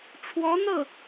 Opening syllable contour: rising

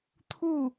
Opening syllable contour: falling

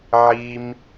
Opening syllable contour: high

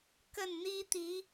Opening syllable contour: falling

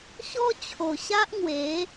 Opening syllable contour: high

